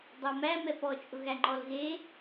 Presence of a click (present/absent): present